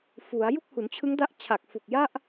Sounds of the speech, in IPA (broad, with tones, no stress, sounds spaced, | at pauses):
f u˩˦ a̯ j u˥˩ k̚ h u˩˦ n t͡ɕʰ ɯ˦˥ ŋ d a˦˥ ʔ t͡ɕʰ a˨˩ k̚ f u˨˩ k̚ j a˥˩ ʔ